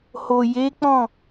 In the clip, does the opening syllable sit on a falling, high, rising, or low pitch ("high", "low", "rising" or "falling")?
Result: low